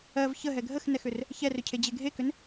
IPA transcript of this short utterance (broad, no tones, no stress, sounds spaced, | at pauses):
ɜ v ç ə ɦ ɛ ɡʱ ə x n ɛ x ʏ r | ç ɛ r ʏ cʰ e d͡ʑ e ɡʱ e k ʏ n